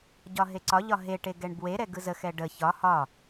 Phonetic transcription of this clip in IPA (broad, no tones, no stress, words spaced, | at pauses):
ɟɒɦeǀɒʎɒ ɦeʈe ɡɛɳbweɾɛ ɡɯzəxɛ ɖə çɒ hɒ